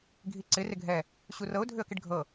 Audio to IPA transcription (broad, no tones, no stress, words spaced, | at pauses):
ɡʱiǀɪ rɪɡʱɛ | ɕurɤʊ̯ dʱʏə̯kɪɖɡʱɤ